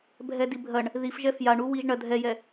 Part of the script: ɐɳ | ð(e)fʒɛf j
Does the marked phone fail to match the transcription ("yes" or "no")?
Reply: yes